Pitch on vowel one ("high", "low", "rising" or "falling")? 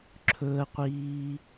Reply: low